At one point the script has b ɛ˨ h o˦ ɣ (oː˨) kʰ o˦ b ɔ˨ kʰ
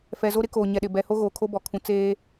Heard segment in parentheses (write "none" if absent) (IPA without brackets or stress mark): oː˨